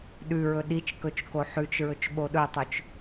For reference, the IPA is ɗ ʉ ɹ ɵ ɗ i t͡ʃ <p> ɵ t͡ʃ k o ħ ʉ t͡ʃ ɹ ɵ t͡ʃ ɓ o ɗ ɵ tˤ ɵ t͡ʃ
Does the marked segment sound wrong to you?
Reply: yes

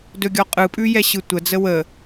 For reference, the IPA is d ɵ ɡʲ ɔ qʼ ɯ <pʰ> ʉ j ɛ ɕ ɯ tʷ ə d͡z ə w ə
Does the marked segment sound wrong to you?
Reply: yes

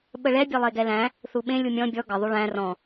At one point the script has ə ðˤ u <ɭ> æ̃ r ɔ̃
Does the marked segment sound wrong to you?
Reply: no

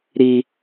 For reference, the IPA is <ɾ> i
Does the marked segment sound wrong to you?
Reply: no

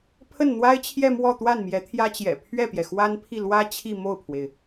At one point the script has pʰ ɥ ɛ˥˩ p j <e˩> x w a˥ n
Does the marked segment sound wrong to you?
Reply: yes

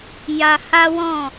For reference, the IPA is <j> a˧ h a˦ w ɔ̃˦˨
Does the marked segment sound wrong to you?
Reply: no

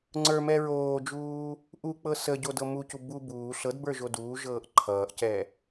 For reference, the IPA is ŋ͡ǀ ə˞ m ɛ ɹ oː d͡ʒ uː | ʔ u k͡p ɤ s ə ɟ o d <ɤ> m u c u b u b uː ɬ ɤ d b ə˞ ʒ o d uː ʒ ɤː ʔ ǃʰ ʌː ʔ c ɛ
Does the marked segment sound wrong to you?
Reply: no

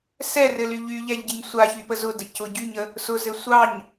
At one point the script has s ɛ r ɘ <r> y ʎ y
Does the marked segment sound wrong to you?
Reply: yes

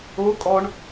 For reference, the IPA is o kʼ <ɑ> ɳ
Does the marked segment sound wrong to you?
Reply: yes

